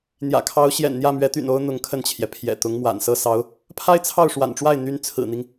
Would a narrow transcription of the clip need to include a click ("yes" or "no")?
no